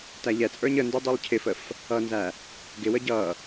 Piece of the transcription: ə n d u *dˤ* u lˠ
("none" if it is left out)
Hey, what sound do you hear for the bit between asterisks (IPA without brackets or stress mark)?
dˤ